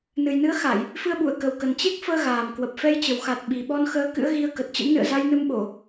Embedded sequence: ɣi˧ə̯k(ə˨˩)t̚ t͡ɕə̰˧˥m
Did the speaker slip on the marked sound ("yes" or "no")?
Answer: no